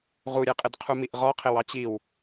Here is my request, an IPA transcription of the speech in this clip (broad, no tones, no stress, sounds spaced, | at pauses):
ʁ u ɾʲ ɛ qʼ ɪ d qʰ u m i ʔ ʁ ɔ qʰ ɪ w ɑ t͡ɕ i w